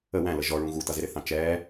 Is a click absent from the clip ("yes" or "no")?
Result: yes